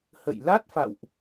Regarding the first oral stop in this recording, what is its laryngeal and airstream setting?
plain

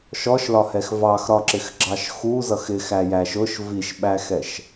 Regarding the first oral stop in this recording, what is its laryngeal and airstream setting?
click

